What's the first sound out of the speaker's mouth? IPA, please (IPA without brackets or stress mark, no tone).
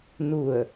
n